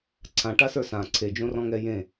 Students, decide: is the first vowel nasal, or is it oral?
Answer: nasal